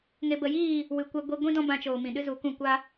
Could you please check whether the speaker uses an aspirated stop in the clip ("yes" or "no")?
no